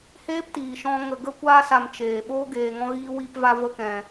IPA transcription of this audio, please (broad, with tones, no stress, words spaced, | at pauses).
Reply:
heː˦ptiː˨ʃɔ̃˧ ŋə˨ɡə˧kʷaː˧sa˨m t͡ʃeː˨ɓo˦ ɡeː˧ŋɔ̃˦ɣiː˦ wi˧pva˧ və˦kɛ̃˧